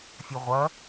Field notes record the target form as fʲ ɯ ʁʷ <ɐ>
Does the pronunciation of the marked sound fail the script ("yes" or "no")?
no